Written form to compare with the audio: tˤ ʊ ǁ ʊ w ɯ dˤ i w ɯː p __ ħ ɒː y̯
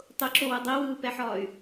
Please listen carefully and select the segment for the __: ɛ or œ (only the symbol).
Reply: ɛ